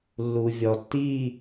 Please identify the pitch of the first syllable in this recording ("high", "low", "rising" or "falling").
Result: low